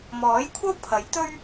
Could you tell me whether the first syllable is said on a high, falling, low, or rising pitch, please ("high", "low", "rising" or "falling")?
rising